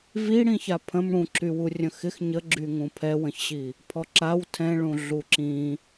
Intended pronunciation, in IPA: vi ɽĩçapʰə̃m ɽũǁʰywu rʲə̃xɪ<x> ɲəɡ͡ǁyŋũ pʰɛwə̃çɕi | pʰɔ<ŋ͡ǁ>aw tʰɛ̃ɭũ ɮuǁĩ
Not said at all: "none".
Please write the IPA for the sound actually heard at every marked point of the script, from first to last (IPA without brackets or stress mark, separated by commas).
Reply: x, ǁ